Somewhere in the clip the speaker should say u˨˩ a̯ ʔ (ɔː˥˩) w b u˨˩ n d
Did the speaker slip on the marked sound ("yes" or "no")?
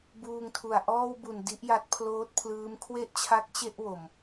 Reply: no